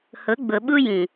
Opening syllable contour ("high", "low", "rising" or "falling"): rising